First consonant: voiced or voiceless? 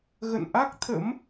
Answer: voiced